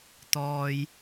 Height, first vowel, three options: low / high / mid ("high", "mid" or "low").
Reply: mid